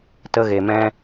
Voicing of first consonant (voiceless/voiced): voiceless